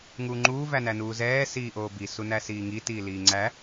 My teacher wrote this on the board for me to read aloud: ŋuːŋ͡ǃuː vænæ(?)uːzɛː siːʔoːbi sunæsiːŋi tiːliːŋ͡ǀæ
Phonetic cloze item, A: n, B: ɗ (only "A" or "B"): A